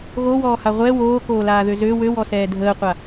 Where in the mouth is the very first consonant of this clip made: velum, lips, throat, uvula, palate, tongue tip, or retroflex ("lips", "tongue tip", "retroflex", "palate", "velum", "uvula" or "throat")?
velum